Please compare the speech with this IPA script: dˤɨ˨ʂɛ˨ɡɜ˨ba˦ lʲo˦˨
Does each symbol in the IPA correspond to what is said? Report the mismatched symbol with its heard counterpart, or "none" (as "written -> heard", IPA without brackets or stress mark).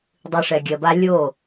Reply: ɡ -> ɡʲ